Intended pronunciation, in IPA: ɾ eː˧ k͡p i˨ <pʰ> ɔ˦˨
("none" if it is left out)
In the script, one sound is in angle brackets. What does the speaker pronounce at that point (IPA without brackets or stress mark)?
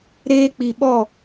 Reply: ɓ